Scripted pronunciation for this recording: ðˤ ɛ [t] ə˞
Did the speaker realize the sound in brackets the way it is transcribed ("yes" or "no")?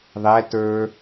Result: yes